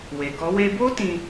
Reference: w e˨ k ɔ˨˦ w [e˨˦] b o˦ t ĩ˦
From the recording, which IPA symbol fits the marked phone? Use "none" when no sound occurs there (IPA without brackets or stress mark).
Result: e˧